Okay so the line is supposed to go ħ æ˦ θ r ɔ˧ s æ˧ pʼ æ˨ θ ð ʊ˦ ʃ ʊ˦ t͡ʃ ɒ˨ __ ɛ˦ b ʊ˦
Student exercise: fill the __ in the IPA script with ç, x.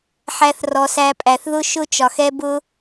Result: x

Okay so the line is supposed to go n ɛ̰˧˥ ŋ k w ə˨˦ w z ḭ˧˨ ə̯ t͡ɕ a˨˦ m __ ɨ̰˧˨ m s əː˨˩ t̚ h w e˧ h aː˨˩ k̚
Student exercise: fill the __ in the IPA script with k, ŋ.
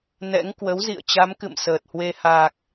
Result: k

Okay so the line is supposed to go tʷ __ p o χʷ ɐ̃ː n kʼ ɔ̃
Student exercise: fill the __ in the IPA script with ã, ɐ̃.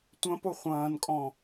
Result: ɐ̃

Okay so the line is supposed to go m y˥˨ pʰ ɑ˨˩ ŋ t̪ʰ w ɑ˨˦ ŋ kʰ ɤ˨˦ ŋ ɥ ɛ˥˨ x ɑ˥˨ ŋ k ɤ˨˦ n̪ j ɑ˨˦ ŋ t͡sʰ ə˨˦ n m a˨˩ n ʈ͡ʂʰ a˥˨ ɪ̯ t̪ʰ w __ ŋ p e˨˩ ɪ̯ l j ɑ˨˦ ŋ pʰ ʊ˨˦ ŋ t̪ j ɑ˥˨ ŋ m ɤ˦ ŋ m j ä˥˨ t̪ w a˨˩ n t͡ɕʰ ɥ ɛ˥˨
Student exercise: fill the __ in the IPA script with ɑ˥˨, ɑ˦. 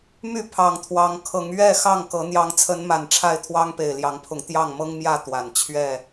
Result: ɑ˦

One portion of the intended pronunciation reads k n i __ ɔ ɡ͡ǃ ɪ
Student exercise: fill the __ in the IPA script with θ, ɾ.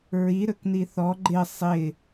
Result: θ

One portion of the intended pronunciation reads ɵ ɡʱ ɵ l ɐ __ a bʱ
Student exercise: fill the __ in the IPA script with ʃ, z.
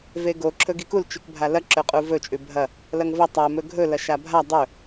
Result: ʃ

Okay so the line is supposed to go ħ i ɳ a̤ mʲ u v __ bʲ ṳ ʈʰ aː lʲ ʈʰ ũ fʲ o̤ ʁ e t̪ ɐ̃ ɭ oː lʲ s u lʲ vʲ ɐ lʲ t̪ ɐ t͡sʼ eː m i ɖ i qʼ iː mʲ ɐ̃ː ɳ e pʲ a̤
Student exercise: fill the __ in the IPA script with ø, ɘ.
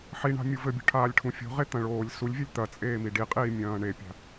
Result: ɘ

